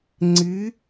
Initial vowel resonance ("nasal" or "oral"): oral